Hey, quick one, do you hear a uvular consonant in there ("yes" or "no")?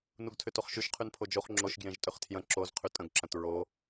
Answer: yes